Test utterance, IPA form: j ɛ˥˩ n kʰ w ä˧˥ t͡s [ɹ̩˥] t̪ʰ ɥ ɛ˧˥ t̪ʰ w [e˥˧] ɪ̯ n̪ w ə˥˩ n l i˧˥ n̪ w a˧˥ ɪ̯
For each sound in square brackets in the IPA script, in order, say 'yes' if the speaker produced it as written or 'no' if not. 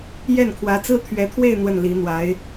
yes, yes

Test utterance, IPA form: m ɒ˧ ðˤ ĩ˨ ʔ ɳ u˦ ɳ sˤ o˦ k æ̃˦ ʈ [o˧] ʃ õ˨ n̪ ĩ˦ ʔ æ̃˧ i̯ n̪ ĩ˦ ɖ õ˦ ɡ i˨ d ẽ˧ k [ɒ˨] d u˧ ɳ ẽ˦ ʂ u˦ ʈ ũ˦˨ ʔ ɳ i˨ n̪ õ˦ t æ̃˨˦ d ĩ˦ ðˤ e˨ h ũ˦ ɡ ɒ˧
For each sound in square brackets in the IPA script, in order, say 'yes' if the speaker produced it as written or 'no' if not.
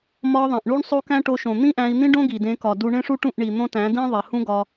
yes, yes

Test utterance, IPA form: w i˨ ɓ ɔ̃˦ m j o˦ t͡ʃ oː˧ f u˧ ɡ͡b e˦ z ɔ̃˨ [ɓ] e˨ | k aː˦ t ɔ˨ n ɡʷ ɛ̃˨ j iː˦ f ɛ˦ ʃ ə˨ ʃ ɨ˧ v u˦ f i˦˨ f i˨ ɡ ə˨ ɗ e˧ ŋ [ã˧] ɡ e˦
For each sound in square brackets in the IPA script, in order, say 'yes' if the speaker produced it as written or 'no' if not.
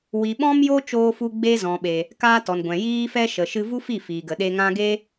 yes, yes

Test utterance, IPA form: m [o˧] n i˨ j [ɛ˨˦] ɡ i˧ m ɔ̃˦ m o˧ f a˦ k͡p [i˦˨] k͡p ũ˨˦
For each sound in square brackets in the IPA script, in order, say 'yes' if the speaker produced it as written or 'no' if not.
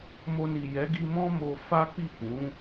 yes, yes, yes

